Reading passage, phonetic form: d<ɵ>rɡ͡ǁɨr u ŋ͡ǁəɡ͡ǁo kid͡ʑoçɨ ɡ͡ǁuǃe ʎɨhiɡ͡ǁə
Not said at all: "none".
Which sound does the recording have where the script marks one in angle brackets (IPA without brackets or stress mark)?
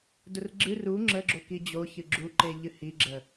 ʊ